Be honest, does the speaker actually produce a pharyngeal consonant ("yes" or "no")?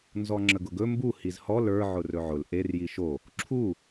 yes